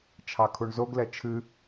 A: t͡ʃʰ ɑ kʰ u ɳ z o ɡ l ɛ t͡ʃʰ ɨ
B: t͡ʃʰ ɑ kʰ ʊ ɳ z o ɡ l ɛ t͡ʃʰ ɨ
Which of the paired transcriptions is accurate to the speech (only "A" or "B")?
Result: A